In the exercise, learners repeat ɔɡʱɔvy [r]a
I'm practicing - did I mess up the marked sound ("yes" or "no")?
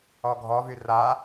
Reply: no